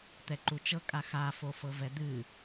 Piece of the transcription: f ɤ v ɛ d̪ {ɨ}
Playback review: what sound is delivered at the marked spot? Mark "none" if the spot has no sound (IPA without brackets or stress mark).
ɨ